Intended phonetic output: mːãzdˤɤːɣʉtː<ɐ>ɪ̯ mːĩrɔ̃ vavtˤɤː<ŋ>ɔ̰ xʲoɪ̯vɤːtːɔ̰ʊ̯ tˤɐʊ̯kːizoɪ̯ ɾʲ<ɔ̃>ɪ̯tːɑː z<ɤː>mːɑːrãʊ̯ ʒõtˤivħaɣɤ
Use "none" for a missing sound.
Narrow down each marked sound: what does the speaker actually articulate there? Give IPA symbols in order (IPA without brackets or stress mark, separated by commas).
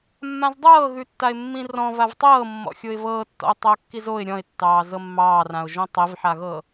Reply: a, mː, ɔ̃, ɤ